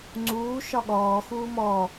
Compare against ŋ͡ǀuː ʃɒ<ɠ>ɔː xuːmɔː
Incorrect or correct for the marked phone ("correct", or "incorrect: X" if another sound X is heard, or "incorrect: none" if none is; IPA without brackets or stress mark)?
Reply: correct